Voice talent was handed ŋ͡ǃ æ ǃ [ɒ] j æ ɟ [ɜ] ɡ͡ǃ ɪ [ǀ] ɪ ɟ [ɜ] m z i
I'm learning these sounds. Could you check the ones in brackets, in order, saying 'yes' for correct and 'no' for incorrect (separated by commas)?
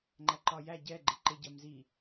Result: yes, no, no, yes